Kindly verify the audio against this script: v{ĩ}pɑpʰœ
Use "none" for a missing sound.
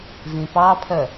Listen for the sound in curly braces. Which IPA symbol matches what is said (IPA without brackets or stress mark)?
ĩ